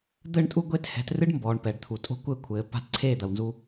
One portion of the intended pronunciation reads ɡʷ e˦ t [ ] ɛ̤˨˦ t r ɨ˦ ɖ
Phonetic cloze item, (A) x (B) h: B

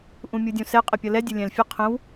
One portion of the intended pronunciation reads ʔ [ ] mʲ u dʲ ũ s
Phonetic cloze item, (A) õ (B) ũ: B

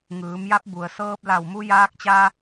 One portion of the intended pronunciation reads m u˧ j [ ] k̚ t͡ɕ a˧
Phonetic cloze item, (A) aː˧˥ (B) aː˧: B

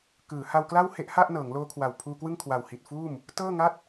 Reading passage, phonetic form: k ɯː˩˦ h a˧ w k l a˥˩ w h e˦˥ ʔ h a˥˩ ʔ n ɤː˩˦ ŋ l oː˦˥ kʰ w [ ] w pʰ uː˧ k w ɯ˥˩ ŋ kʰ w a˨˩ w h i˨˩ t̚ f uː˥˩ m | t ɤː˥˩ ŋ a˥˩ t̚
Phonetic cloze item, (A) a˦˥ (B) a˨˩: B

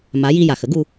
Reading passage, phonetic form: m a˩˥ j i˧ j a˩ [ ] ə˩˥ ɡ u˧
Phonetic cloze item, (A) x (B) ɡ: A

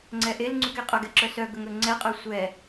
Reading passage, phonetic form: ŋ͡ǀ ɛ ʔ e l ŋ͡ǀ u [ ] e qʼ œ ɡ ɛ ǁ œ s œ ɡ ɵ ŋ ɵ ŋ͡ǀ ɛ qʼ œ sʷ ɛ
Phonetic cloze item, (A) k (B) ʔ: A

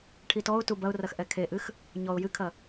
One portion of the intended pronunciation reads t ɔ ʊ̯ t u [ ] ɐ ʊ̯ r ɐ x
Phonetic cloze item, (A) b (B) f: A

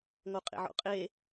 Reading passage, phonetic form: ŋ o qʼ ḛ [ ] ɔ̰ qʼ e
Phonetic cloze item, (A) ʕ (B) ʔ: A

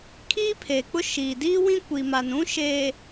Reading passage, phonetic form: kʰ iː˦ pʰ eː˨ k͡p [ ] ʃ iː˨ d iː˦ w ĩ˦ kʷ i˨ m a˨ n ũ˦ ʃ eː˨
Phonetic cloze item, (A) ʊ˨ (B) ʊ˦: B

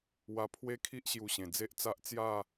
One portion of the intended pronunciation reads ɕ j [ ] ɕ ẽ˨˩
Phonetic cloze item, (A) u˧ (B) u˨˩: A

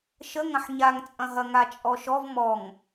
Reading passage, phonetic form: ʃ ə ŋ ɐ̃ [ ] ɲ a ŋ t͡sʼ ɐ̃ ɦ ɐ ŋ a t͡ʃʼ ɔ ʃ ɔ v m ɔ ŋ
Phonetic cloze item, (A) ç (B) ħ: B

